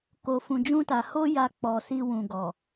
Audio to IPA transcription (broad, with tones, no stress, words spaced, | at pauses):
ko˨fũ˨ d͡ʒũ˧ta˨ ho˧ ja˧k͡pɔ˨si˧ wũ˨ɡɔ˨